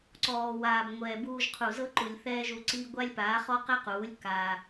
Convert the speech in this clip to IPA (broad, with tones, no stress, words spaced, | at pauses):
ǀɔː˨waː˨b ŋʷɛː˨buː˧ʒqʰu˨ zɤ˦ǃu˨lʲ θɛː˦ʒu˧ǀi˦ ɡʷa˦lʲpaː˨˦χɔ˦ qɛ˦quː˨˦lʲ ka˧